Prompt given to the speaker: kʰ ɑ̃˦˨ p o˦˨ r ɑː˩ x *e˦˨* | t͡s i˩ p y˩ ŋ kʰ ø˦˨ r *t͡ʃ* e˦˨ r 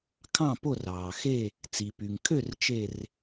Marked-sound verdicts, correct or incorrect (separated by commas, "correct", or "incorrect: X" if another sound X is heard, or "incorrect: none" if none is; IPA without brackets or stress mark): correct, correct